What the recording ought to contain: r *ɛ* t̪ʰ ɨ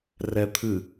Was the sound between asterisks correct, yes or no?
yes